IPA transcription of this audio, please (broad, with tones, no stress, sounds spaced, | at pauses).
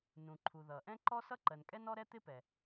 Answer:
n ũ˩ ǃʰ u˩ ð ʌ˩ ʔ ɛ̃˥ ǃ ɔ˥ s ʌ˥ ǃ ɜ˩ n kʼ ɛ˥ n ɔ˥ ɾ ɛ˥ t̪ ɪ˥ p ɛ˩